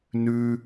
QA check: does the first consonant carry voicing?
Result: yes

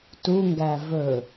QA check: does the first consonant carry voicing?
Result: no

